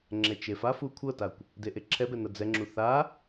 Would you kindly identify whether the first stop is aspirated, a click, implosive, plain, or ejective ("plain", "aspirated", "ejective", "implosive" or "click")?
click